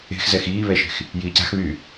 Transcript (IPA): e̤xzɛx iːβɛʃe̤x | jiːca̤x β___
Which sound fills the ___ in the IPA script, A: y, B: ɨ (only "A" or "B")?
A